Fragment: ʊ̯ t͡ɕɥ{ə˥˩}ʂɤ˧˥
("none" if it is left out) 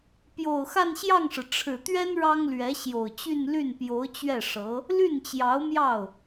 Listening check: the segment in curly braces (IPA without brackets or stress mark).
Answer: ɛ˥˩